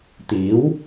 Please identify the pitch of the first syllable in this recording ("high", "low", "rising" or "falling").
rising